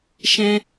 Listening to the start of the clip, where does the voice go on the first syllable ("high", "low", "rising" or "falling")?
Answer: high